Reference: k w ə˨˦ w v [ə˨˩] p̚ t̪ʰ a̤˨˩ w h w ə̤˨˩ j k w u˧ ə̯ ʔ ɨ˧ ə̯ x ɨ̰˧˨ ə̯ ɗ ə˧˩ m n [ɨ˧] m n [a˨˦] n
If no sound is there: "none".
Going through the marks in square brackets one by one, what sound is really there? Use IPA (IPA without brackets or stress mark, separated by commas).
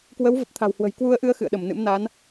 ə˨˩, ɨ̰˧˥, a˨˦